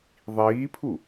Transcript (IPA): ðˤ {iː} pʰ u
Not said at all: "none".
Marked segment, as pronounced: iː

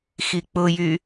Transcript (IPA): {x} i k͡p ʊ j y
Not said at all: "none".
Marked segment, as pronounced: x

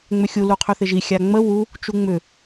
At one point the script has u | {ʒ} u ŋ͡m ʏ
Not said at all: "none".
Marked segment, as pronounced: t͡ʃ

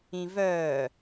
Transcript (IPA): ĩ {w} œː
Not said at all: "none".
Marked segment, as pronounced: v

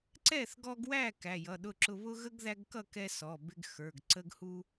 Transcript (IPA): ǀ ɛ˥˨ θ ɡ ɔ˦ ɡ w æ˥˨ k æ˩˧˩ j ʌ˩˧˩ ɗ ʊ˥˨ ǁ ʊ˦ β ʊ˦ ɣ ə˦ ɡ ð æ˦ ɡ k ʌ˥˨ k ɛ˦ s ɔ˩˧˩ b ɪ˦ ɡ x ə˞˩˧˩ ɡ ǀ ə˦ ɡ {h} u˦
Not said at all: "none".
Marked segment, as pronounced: h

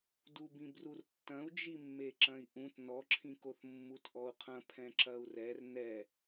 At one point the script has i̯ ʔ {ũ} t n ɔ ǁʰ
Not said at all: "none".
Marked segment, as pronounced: ũ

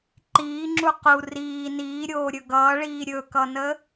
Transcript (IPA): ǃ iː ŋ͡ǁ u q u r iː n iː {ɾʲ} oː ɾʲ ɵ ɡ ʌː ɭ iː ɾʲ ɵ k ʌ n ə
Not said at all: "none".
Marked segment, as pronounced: ɾʲ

